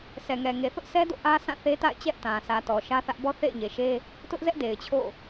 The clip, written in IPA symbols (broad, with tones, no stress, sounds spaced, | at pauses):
sʰ ɛ˨ ŋ ɛ˨ ŋ e˨ θ ʊ˦ ʔ s ɛ˦ d o̰˦˨ ʔ ä˦ sʰ ã˦˨ θ e˦ t a̰˦˨ ɪ̯ t͡ɕ ɛ˦ ʔ t ã˨ sʰ ä˨ t ɔ˨ ʃ ä˦ θ ä˦ ʔ b ɔ˦ θ ḛ˦˨ ɪ̯ ɲ e˨ ʃ e˦ | t ʊ˦ ʔ z ɛ˦ ʔ d e˨ ɪ̯ t͡ɕʰ o̰˦˨